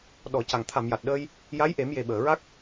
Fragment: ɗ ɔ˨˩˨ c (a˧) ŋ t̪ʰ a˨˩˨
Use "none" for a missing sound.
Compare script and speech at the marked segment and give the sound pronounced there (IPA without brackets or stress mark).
a˨˩˨